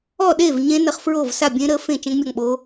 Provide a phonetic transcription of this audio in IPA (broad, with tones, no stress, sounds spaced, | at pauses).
ɔ˥˨ ɗ e˥˨ v ɲ ẽ˦˥ n ə˦˥ χ f ɹ o˥˨ v s a˥˨ bʲ ẽ˦˥ ɾ ə˦˥ f ẽ˥˨ t͡ʃ ɛ̃˦˥ ŋ mʲ ɔ˥˨ ŋ ɓ o˦˥